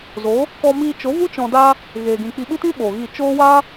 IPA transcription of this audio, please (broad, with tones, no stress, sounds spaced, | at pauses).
z o˨˦ | k ɔ˧ m iː˧ t͡ʃ o˨˦ v u˦ t͡ʃ ɔ̃˧ d a˦ | ɣ eː˧ ɡ ĩ˧ k͡p i˧ ɓ ɨ˦ t ĩ˦ ɓ oː˨ ɣ i˦˨ t͡ʃ oː˦ w a˦